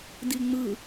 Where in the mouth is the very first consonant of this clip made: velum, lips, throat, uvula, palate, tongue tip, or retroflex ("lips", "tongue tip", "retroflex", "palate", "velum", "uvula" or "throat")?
tongue tip